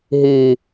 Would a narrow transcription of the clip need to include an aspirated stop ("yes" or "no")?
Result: no